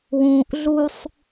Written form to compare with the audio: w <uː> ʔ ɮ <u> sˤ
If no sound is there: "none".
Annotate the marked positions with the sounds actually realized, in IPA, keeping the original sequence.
ũː, u

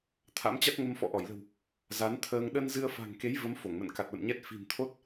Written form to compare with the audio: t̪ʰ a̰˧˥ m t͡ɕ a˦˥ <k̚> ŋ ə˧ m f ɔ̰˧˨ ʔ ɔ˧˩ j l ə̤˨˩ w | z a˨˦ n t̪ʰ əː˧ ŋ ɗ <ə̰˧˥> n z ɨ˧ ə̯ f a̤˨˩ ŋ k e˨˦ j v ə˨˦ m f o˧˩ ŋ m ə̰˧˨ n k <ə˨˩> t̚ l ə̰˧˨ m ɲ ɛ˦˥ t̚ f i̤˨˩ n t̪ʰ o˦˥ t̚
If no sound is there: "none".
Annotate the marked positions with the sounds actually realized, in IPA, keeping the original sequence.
t̚, ə˧, a˨˩

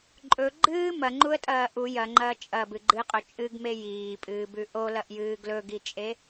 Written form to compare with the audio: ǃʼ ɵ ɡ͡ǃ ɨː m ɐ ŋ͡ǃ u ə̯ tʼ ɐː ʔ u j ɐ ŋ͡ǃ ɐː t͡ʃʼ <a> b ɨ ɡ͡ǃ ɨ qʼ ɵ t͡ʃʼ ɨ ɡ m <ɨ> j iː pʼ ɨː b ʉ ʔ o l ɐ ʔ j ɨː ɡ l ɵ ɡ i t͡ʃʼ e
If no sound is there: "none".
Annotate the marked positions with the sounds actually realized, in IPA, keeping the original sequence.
ɐ, e

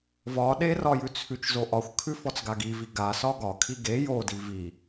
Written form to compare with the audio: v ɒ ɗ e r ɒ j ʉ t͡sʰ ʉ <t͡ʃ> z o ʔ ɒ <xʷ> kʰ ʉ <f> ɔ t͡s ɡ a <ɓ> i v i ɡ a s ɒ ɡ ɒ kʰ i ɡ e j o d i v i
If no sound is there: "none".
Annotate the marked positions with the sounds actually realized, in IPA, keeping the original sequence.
t͡ʃ, xʷ, f, ɡ

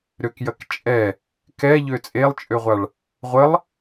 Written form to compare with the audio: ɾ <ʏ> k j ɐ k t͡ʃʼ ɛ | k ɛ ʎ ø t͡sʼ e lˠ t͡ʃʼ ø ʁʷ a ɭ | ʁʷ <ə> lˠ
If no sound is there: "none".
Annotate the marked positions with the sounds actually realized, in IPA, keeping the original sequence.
ʏ, ə

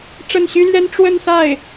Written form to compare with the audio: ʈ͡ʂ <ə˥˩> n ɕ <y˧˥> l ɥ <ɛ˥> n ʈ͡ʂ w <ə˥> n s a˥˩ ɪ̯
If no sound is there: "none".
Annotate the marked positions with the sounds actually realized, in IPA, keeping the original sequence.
ə˥˩, y˥, ɛ˥, ə˥˧

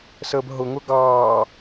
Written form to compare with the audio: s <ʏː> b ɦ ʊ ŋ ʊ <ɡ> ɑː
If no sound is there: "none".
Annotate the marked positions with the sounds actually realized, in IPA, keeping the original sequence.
əː, ɡ

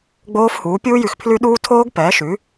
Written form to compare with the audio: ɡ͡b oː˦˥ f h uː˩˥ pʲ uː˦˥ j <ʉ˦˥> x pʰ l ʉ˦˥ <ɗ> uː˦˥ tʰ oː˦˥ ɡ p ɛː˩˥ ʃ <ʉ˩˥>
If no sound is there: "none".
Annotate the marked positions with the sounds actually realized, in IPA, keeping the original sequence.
ʉ˨, ɗ, ʉ˩˥

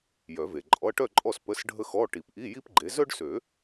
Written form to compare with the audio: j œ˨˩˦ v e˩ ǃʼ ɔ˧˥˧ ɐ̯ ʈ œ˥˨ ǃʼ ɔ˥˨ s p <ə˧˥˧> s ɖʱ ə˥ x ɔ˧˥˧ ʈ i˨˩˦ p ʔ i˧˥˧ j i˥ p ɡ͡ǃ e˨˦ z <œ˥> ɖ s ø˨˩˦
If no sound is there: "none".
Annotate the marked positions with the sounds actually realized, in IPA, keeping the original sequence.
ə˧˥˧, œ˥

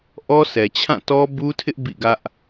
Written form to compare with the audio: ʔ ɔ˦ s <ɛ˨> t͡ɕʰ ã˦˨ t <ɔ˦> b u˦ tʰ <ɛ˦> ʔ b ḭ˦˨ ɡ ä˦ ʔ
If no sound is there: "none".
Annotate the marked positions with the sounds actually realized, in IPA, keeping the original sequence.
ɛ˨, ɔ˦, ɪ˦

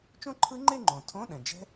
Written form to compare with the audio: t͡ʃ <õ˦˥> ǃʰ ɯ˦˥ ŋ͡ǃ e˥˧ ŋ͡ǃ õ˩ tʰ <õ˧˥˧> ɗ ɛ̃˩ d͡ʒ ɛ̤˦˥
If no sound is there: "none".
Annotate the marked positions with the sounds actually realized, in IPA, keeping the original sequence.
õ˥˧, õ˧˥˧

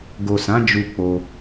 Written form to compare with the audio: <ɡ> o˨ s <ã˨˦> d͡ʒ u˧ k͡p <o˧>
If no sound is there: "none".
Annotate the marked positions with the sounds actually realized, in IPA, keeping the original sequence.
ɡ, ã˨˦, o˧

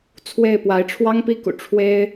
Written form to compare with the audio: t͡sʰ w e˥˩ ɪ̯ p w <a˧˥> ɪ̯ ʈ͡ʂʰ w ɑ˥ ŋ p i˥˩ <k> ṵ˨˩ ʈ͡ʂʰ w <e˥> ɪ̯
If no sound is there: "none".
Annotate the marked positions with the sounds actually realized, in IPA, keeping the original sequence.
a˧˥, k, e˥

